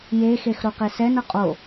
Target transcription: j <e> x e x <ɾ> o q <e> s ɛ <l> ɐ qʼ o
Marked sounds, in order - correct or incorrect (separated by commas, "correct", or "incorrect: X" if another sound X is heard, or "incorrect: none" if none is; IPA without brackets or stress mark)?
correct, correct, correct, incorrect: n